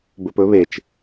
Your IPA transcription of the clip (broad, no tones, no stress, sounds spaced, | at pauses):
b ɵ p ɵ β e t͡ʃ